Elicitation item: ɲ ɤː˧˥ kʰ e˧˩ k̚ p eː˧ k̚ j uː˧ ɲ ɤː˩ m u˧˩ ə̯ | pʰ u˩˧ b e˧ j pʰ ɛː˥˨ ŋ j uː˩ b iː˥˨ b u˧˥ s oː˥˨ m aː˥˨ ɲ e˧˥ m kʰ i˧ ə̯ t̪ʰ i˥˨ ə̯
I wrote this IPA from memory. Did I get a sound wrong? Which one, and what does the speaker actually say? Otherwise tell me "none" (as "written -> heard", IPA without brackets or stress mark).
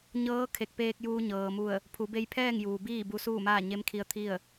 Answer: oː˥˨ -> uː˥˨